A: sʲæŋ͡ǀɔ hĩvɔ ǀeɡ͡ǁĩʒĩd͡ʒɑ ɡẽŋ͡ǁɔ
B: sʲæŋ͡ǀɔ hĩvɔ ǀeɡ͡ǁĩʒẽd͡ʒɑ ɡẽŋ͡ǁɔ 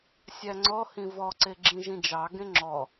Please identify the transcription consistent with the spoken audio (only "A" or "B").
A